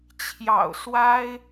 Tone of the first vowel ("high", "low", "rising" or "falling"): low